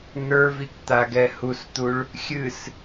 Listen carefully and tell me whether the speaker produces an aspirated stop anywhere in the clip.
no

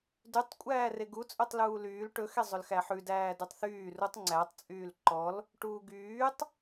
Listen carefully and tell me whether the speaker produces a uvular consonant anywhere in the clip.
no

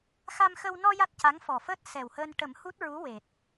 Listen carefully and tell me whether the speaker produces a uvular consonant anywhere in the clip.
no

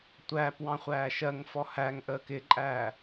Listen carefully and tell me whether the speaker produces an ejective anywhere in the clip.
yes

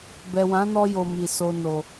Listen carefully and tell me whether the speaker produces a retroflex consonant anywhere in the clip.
no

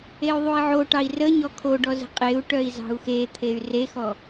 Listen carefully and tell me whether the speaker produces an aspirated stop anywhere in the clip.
yes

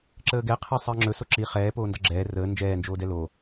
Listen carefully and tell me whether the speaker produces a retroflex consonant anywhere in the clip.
no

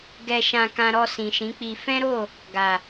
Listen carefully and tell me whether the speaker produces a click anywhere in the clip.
no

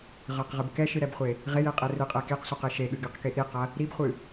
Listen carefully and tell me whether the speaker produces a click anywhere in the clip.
no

